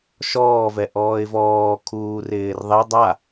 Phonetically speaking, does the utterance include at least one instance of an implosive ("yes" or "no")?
no